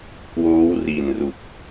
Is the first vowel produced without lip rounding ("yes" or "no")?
no